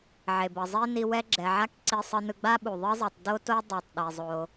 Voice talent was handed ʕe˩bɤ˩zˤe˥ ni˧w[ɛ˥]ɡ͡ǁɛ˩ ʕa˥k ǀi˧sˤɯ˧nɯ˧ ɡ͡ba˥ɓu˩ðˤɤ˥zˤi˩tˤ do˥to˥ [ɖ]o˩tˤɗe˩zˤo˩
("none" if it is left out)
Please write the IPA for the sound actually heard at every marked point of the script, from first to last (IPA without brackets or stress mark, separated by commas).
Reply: ɛ˥, dˤ